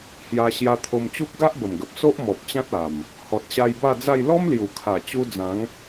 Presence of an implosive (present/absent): absent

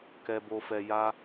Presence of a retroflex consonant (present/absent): absent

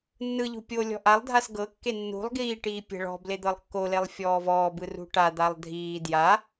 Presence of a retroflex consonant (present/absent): present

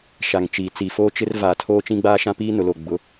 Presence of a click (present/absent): absent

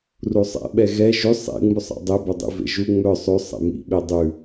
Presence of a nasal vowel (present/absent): absent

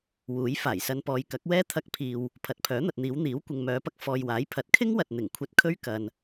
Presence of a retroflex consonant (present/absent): absent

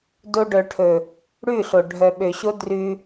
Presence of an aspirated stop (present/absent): present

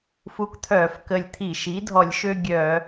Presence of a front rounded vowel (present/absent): present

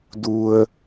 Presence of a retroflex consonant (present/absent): absent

